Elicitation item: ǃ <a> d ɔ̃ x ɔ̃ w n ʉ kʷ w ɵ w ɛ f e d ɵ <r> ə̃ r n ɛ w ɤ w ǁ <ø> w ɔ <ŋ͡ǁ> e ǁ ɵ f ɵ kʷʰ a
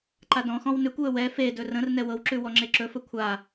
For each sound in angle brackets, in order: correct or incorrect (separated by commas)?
correct, correct, incorrect, correct